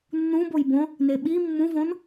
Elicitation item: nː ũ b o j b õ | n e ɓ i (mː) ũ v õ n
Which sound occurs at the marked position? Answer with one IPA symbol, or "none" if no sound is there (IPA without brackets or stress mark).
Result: mː